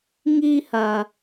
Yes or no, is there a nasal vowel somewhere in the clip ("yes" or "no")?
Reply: no